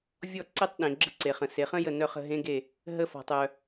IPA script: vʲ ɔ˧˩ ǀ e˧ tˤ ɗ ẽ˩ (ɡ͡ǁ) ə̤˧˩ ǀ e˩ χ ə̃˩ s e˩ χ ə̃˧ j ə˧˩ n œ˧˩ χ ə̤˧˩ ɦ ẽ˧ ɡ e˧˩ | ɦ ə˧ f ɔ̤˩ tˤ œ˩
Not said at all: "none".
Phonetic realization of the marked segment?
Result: ɡ͡ǁ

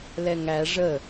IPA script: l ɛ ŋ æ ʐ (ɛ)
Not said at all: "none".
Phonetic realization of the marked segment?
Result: ə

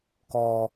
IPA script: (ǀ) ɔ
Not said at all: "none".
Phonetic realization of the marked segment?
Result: k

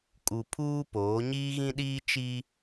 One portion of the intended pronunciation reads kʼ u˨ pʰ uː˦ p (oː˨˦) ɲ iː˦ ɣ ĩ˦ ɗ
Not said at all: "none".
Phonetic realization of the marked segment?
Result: oː˨˦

